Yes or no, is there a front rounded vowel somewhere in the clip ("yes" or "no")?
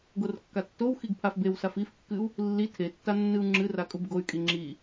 yes